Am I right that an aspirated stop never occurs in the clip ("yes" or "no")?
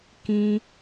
yes